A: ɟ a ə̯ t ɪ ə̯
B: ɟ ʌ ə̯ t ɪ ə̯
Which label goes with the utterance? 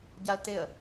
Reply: A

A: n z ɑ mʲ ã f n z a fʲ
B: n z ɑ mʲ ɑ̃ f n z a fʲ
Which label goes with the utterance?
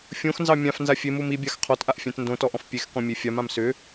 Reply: A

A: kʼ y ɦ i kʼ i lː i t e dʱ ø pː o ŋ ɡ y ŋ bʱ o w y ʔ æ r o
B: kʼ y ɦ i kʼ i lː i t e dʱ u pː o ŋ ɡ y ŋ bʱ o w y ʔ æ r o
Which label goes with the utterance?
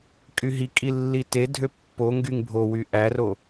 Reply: A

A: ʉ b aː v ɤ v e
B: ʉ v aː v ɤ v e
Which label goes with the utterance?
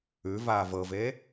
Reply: B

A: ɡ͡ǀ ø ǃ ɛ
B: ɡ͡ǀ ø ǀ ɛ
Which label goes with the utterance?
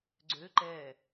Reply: A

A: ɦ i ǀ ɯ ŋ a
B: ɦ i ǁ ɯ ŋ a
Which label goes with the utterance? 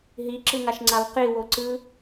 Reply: B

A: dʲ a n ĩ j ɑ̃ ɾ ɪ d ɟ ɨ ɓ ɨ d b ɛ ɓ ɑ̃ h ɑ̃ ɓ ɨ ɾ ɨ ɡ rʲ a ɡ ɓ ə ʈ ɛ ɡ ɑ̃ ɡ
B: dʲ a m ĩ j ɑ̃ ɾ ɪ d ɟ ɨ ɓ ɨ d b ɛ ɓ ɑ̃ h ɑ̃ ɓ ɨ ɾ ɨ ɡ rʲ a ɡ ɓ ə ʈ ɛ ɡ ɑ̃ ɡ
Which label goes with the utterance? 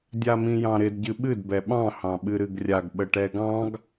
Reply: B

